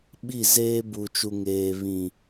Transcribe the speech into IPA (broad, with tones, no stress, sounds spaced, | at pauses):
ɓ i˦˨ z eː˦ b u˨ t͡ʃ u˨ ŋ eː˨ β ĩ˨